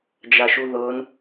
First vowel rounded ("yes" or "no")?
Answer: no